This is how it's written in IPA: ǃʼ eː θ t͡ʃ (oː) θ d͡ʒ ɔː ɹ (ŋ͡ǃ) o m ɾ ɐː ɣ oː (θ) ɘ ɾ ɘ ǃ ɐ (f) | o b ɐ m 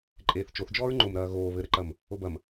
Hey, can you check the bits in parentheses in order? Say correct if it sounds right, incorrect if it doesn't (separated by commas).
incorrect, correct, incorrect, incorrect